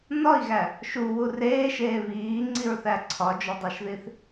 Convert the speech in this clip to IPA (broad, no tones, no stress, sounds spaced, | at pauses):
n ɒ i̯ ɣ æ | ʃ u w u r eː ʃ eː β iː ŋ͡ǀ i ɹ θ æ ǀʰ ɒ d͡ʒ o dˤ æ ʃ ð i θ